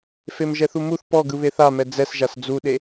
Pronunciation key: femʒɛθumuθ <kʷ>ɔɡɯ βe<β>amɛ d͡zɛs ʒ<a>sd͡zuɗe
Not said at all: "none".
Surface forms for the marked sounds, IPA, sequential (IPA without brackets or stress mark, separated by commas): p, θ, a